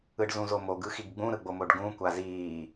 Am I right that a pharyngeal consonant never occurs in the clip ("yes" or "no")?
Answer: yes